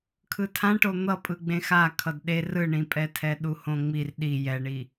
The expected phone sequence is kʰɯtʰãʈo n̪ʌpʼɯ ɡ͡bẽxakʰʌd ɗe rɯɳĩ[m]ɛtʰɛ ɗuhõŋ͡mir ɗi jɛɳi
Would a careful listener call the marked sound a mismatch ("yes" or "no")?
yes